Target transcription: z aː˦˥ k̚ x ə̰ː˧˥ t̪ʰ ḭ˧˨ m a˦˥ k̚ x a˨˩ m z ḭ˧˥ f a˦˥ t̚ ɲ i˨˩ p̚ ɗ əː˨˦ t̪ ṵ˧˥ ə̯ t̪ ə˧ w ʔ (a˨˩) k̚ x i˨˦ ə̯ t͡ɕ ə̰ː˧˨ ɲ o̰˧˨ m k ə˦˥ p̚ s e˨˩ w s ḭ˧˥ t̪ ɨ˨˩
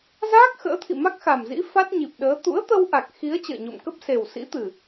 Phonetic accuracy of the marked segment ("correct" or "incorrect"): correct